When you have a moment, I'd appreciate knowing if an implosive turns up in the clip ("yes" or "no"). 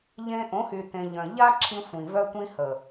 no